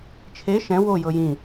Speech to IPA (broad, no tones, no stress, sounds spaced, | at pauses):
t͡ʃʰ e ʃ ɛ̃ w o j ɤ j ĩ